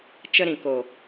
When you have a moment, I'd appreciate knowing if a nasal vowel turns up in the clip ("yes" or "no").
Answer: yes